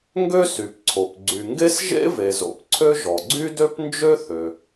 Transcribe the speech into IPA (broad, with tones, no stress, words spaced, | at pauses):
ŋɡø˥sy˩pǀʰo˩p ɡ͡ǀy˩ŋɡe˥s ʒḛ˥ve˩zo̰˩p ǀʰø˥ʒɔ˩ ɡ͡ǀy˥dø˥pnd͡ʒø˥ θø˩